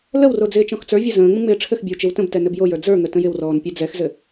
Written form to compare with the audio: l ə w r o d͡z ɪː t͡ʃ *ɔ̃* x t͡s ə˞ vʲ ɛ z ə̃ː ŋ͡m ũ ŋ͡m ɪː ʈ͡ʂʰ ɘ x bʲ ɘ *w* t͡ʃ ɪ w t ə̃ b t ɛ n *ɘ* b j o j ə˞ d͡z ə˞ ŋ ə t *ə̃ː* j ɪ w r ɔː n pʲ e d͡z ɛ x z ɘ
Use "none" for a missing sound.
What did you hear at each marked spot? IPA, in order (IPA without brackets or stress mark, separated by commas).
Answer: ɔ̃, w, ɘ, ə̃